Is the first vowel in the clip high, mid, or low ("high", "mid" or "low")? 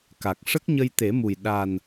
low